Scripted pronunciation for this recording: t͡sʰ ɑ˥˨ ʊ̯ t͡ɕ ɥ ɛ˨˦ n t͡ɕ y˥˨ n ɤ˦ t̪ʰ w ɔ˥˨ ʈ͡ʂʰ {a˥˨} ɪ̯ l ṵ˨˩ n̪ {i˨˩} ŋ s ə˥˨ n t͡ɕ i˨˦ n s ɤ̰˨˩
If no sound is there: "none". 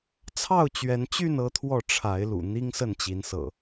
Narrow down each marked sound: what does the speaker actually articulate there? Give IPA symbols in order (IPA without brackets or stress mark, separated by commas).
a˨˦, i˦